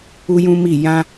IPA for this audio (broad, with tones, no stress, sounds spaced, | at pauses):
u˦ j ũ˦ m i˦˨ j ã˧